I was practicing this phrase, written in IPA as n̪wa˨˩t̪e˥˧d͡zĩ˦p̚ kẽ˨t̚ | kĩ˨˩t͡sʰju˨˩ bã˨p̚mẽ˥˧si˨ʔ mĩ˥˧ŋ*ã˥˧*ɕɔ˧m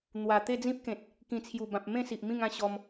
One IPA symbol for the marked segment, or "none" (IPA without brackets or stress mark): ã˥˧